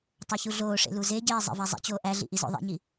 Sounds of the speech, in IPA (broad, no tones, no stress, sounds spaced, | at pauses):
tˤ o ç u ɮ oː ʂ ḛ l u z e ɟ eː zˤ ḛ v æ zˤ ḭ t͡ɕ oː ʔ æ ɮ ḭ ʔ i z o̰ ðˤ ḛ ɲ i